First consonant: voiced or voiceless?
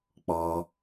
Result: voiceless